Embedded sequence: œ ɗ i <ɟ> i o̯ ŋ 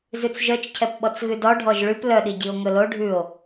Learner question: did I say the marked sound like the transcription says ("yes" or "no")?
yes